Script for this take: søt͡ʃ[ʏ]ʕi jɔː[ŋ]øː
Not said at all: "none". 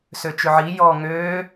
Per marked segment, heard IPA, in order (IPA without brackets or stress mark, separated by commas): ʏ, ŋ